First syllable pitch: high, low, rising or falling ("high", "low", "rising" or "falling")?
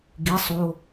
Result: rising